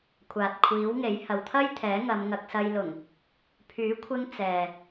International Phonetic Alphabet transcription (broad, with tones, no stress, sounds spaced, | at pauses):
kʷʰ aː˨ t̚ kʷʰ iː˨˥ w ŋ e˨˥ j h ɐ˨ w t̪ʰ ɐ˥ j t̪ʰ ɛː˨˥ ŋ ɐ˨˧ m ŋ ɐ˧ k̚ s ɐ˧ j l ʊ˨˩ ŋ | pʰ yː˨˥ kʷʰ ɪ˧ ŋ t͡s ɛː˨